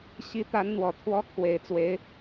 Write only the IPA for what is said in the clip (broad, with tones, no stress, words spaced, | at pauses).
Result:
ɕi˧˥t̪a˧˥nn̪wɔ˨˩ t̪ʰwɔ˥ kʰwe˨˩ɪ̯t͡swe˧˥ɪ̯